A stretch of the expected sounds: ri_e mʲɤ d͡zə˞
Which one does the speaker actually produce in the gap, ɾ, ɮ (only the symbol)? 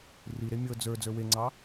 ɾ